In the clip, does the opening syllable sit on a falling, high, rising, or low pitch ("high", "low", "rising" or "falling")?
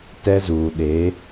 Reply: high